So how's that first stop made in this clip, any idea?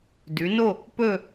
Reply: plain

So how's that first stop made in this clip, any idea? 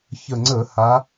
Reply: click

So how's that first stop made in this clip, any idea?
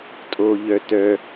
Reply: ejective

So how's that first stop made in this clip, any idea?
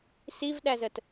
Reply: implosive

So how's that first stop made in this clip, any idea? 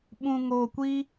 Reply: implosive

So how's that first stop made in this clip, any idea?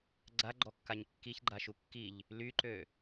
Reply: click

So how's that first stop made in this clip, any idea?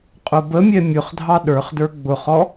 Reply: ejective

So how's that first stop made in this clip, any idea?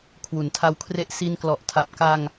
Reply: aspirated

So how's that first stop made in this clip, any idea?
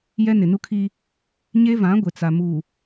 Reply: aspirated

